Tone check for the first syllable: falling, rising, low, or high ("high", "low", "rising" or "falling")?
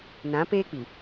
rising